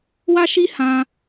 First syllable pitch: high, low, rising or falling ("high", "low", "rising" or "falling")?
high